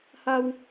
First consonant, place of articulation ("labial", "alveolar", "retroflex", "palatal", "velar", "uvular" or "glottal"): glottal